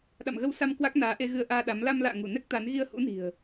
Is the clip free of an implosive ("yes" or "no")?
no